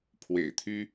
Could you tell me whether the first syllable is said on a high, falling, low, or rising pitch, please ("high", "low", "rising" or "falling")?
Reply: low